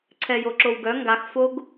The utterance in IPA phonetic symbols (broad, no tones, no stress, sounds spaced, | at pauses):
ǀʰ ɛ j o ǁ o w ɡ œ ŋ ɡ a x f o ɡ